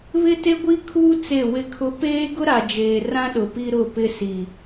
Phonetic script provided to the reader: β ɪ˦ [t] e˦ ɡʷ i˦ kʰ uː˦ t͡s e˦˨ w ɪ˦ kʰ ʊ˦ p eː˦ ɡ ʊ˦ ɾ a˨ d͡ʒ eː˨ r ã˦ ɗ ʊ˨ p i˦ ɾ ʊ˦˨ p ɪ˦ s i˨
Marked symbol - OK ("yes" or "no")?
yes